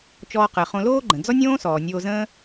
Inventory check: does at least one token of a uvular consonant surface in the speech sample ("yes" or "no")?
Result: yes